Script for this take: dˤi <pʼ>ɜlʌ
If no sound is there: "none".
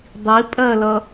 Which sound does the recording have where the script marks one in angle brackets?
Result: pʼ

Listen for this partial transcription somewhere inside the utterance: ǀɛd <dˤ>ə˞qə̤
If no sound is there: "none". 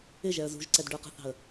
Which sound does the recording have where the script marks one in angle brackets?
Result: ɖ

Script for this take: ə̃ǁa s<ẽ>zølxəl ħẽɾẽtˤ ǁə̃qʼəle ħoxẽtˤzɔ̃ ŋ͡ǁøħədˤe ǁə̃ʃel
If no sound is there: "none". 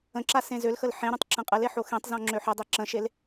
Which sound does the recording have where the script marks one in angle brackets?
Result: ẽ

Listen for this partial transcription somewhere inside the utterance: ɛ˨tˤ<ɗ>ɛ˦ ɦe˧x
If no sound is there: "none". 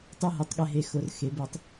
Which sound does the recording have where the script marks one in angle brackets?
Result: ɠ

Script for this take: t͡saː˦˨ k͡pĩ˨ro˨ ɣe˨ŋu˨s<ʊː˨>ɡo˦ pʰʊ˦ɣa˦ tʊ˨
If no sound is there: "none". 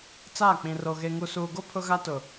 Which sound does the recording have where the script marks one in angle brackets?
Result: uː˨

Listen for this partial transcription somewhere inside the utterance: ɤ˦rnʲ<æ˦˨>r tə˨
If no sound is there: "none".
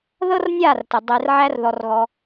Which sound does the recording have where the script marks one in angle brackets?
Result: a˦˨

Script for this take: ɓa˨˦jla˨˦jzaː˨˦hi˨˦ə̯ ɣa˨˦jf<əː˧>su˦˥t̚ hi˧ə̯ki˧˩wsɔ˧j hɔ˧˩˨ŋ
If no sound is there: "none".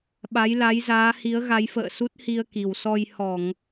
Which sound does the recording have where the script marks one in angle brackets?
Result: ə̰ː˧˨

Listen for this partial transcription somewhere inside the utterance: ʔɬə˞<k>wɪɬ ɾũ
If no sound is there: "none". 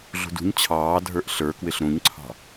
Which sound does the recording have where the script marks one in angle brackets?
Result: k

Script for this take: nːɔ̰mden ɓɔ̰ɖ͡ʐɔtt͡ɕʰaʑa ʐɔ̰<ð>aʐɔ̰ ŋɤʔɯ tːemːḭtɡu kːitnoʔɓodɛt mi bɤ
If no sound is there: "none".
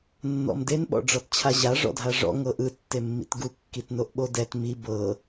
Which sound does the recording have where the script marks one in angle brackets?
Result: dʱ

